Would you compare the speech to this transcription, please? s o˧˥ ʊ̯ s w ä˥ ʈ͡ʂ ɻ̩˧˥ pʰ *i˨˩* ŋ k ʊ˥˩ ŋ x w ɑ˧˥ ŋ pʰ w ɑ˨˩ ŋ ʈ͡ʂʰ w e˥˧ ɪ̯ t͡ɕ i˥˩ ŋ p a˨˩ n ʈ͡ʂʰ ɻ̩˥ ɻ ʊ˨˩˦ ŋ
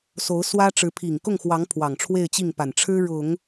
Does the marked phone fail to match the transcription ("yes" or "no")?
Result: no